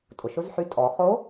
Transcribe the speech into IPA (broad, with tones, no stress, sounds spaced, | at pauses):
tʼ ʊ˩ ʃ ʊ˧˥ z ħ y˧ tʼ ɔ˩˧ χ o˧˥